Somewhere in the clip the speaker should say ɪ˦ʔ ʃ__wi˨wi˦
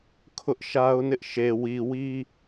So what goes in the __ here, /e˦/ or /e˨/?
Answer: e˨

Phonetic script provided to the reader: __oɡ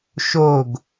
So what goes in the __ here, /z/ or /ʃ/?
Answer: ʃ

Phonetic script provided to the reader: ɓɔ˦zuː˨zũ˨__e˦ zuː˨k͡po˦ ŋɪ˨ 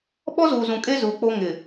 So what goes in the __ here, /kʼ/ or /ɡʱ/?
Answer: kʼ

